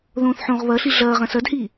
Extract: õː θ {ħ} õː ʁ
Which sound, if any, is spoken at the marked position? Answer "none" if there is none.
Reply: ħ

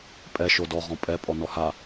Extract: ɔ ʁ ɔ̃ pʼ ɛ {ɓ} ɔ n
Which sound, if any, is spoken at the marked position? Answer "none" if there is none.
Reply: pʼ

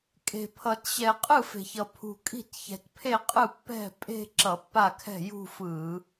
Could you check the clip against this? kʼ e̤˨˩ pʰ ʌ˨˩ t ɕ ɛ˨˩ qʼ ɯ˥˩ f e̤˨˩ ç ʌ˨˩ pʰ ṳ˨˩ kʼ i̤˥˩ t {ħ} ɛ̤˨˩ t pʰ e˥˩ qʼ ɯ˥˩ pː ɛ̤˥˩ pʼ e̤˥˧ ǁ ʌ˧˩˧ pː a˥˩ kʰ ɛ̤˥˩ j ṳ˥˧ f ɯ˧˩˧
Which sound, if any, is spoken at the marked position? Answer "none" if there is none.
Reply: ç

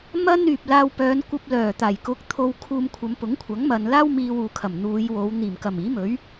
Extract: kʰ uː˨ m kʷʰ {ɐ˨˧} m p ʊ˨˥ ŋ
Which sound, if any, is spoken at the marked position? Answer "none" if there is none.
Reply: ɐ˨˧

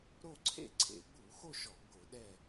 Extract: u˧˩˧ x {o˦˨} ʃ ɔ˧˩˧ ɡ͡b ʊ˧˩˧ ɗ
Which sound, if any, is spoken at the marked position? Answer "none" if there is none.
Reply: o˦˨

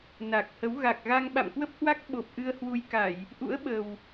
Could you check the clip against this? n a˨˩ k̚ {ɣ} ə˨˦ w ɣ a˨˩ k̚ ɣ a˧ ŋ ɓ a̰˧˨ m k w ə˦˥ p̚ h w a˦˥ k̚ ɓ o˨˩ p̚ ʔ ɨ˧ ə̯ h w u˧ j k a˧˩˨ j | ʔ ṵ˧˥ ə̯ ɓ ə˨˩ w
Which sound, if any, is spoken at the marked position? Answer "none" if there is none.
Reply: h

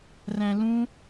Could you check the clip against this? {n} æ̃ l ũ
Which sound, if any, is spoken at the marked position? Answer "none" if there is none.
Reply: r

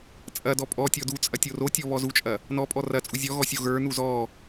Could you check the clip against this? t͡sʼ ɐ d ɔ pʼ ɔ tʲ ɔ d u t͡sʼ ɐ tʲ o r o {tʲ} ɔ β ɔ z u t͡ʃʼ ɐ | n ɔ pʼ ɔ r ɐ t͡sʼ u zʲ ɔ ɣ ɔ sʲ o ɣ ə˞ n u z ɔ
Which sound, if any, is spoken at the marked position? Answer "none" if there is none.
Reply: tʲ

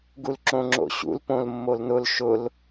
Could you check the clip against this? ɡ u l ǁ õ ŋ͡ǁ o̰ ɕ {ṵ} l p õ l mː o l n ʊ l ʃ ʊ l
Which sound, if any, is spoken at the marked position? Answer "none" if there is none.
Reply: ṵ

